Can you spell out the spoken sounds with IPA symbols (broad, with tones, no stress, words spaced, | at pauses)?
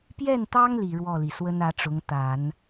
pjɛ˥˩nt̪ɑ˥ŋli˨˩ ɻwɔ˥˩li˩ swə˥nä˧˥ ʈ͡ʂʊ˧˥ŋ t̪a˨˩˦n